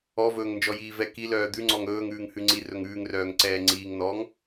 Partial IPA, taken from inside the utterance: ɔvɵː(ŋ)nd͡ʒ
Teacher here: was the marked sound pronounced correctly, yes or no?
yes